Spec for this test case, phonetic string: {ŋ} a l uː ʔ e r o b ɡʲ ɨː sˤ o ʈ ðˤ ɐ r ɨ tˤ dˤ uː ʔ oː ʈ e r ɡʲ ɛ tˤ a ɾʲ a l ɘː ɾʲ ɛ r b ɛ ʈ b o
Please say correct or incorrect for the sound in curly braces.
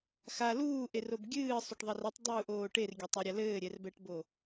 incorrect